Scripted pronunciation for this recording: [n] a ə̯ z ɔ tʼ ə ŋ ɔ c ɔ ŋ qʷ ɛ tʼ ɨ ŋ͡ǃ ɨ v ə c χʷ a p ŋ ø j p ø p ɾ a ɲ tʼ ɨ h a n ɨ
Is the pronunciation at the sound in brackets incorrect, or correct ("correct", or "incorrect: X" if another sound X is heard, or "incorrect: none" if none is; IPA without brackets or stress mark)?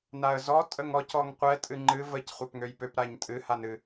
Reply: correct